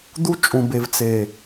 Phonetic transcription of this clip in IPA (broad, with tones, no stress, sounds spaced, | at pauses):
d̪ u˦ t͡ʃʼ ũ˨ b e˨ v t͡s e˨